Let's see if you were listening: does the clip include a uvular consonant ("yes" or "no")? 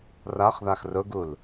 yes